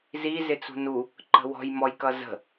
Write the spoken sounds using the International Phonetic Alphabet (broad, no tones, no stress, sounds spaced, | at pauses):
z i z ɪ t͡s ṳ n u | ǃ ə̤ w ɔ̤ j m ɔ j k ʌ z ə̤